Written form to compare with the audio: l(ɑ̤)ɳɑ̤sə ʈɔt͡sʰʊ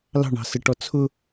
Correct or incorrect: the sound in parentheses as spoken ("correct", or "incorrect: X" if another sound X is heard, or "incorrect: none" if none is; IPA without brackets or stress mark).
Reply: correct